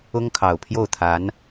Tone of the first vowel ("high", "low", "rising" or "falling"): high